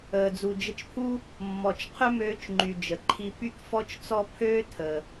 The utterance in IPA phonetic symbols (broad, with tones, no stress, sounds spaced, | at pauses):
əː˩ d͡z u˩ d͡ʒ ə˧ t͡ʃ pʰ u˥ | mː ɔ˩ t͡ʃ qʰ ø˥ m øː˧ t͡ʃ ŋ͡ǃ y˩ d͡ʒ ə˩ ǃʰ i˧ p y˥ k f ɔ˥ t͡ʃ t͡s ɔ˥ pʰ øː˥ tʰ ə˩